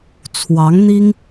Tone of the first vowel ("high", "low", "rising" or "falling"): rising